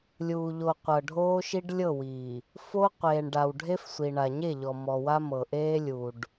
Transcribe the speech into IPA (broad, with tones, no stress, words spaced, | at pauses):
lʲuː˨ʎo˨qʷɤ˨ ɖʱoː˦ʃi˦ɖlʲɤ˦˨wiː˨ | fo˦ qʷeː˨ɳ ɖaː˨wɖʱe˦fsʷi˨ ɳa˨ɲe˦˨ ʎɔ˨mɔ˨wa˦ mɤ˨ʔeː˦lʲu˨ɖ